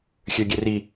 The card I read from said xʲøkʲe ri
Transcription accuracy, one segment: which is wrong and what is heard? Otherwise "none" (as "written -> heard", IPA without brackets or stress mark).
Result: kʲ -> ɡʲ